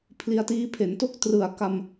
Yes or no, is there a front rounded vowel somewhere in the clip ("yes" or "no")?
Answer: no